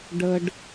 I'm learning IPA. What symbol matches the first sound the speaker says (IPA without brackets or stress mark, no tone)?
ɖ